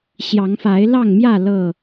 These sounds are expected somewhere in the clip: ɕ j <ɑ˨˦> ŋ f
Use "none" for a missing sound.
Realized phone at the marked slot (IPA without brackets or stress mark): ɑ˨˦